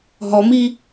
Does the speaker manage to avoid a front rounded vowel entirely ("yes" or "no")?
yes